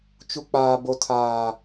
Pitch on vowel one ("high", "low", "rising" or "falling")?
high